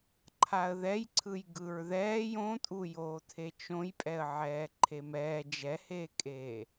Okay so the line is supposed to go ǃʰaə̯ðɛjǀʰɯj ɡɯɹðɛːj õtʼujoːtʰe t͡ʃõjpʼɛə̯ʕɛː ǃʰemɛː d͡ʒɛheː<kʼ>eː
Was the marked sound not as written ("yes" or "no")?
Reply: no